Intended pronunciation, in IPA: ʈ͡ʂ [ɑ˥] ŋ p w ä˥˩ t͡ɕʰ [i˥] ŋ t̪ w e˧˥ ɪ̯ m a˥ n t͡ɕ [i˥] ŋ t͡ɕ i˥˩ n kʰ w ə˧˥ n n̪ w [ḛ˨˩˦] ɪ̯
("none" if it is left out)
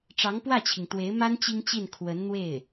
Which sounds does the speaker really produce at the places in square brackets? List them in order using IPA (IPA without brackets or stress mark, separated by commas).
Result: ɑ˧˥, i˩, i˥, e˥˩